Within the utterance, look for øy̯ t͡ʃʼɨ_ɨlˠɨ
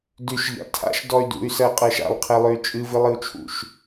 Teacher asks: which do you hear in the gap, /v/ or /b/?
v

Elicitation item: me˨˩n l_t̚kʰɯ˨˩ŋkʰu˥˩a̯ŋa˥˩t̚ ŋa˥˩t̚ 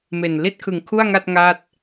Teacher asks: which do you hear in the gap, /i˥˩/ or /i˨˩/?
i˥˩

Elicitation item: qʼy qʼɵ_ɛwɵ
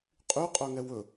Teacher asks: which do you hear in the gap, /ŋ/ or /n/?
ŋ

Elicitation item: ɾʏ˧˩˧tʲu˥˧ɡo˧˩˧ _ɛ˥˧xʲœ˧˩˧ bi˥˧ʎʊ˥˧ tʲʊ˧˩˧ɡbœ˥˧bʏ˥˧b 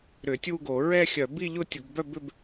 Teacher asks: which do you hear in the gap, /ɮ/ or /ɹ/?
ɹ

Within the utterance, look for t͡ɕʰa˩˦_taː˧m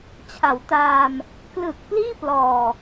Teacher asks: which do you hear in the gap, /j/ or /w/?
w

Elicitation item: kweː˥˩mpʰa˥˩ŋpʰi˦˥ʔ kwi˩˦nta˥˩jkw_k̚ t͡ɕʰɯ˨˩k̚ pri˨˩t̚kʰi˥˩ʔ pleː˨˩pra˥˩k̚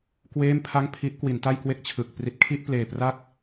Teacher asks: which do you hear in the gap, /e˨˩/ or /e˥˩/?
e˥˩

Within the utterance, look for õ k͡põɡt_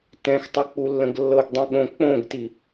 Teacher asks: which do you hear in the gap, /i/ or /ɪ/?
i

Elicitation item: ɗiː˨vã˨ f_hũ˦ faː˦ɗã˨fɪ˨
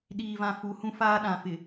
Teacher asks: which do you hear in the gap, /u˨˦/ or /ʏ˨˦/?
u˨˦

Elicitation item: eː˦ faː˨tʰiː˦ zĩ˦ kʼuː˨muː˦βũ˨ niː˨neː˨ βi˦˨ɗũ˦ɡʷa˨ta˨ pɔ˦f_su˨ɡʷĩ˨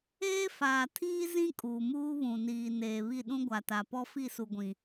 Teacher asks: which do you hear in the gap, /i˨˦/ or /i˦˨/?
i˦˨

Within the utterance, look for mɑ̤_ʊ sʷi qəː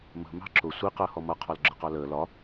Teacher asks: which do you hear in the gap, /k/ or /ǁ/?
ǁ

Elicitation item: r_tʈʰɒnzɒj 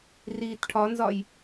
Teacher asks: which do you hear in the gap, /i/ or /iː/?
iː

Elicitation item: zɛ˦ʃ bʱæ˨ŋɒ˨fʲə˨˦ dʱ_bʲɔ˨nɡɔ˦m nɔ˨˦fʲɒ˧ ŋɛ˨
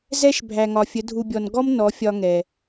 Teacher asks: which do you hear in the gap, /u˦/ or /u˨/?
u˨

